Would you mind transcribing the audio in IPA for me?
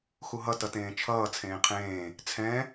x u ɦ ʌ t ʌ t ẽː t͡ʃʰ ʌː t͡sʰ ẽː qʰ ẽː | t͡sʰ ɛ̃

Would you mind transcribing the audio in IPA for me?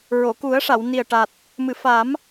ɹ o˨˩˨ k u˨˩˦ ə̯ ʂ a˨˩˨ w n i˨˩ ə̯ ʈ a˨˩ t̚ | m ɨ˨˩˨ f a˨˩˦ m

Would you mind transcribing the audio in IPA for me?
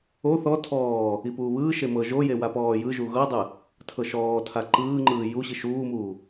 o θ ɔ tʰ ɔː | i p uː β ɯː ʃ e m ɤ ʒ o j e w a p ɔː j ɯ ʒ u ɣ ɤ dˤ ɯ | tʰ ɤ ʃ ɔː tʰ a ǃ ɯː ŋ͡ǃ ɯː j u ɕ i ʃ uː m uː

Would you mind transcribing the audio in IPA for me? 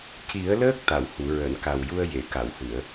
c i˨˩˦ ə̯ l əː˦˥ k̚ t̪ a˨˩˨ w h u˨˩˨ ɹ əː˨˩˨ n k a˨˩ w j u˧ ə̯ j e˨˩˨ k a˨˩˨ w h ɨ˨˩˨ ə̯

